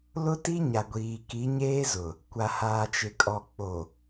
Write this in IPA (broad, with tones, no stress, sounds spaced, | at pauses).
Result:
l ʊ˦ t i˦ ɲ a˨ ɡʷ iː˨ k i˨˦ ɲ eː˦ z ʊ˨ | kʷ a˨ h aː˨ t͡ʃ ɪ˨ kʼ ɔ˨ k͡p o˨